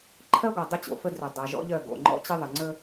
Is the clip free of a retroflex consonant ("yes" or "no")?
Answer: yes